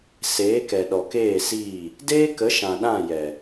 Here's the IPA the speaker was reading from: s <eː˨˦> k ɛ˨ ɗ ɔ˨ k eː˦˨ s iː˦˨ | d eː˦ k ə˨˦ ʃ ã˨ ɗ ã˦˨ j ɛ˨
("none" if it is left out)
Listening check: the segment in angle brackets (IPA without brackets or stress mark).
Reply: eː˨˦